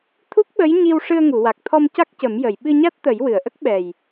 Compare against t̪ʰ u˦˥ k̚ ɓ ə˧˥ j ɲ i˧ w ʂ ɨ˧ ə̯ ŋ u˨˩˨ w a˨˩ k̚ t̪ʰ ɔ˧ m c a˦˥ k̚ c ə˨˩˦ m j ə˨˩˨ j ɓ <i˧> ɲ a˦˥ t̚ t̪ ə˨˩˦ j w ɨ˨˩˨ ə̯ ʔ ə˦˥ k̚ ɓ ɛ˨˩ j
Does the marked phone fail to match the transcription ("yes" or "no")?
yes